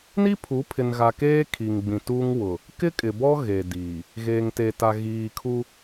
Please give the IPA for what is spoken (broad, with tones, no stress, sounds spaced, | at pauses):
n i˦ pʰ u˨˦ pʰ ɪ˨ n ɣ a˨ k eː˦ kʰ i˨ ŋ ɡ͡b ĩ˨ t uː˦ ŋ w ʊ˨ | k ɪ˦ kʼ ɪ˨ b ɔ˦ ɣ e˨ d iː˨ | ɣ eː˨ ŋ t e˨ t a˨ ɣ iː˨ kʰ u˦